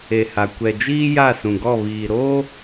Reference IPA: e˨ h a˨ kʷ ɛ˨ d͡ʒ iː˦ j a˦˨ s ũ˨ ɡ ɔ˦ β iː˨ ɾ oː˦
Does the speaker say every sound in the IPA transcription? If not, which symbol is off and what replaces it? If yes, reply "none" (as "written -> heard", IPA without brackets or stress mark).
ɔ˦ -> ɔ˦˨